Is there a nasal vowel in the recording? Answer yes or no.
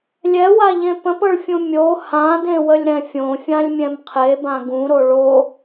yes